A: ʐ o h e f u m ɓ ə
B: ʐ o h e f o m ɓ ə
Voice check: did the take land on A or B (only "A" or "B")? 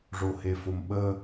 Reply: B